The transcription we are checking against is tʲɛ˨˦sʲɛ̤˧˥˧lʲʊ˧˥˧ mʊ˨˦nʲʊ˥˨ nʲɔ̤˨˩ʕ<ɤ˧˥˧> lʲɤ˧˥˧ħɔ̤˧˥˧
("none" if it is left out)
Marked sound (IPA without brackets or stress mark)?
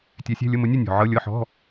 ɤ˧˥˧